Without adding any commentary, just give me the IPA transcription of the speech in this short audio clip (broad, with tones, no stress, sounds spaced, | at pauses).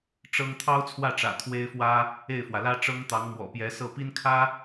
ʈ͡ʂ ɤ˥ ŋ t̪ʰ ɑ˥ ʊ̯ t͡sʰ w ä˥˩ ʈ͡ʂ ä̰˨˩ t̪ʰ w e˥ ɪ̯ f w ä˥ | e˥˩ ɪ̯ f w ä˩ l ä˥ ʈ͡ʂ ɤ˥ ŋ t̪ ɑ˧˥ ŋ m w ɔ̰˨˩ p j ɛ˧˥ s ɤ˥˩ p i˥ n kʰ ä˥